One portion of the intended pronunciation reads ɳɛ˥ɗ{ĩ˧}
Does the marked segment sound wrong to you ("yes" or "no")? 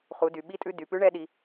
yes